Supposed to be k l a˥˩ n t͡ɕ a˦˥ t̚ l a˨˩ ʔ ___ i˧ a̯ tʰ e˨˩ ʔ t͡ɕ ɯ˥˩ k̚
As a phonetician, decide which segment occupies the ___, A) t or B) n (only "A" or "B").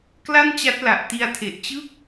A